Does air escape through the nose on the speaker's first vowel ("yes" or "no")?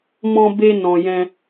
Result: yes